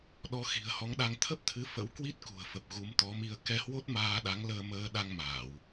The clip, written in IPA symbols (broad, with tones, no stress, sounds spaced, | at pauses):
ɗ ɔ˨˦ x i̤˨˩ ə̯ h ɔ˨˦ ŋ ɗ a˧ ŋ t̪ʰ ə˦˥ p̚ t̪ʰ ɨ˨˦ f ə̰˧˥ w k w i˦˥ t̚ k ṳ˨˩ ə̯ f ə˨˩ p̚ ɣ u˨˦ m t̪ ɔ˨˦ m i˧ ə̯ k ɛ˧ h w o˦˥ t̚ m aː˧ ɗ a˨˦ ŋ l əː˧ m əː˧ ɗ a˧ ŋ m aː˧˩˨ w